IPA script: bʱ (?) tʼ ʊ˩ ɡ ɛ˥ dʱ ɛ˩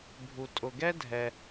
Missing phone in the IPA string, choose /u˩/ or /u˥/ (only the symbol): u˩